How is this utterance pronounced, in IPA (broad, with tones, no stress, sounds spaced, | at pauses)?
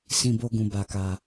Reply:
s ĩ˧ b o˧ ɡ ũ˨ b a˨ k a˨